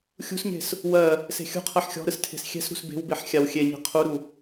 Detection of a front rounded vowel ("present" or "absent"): absent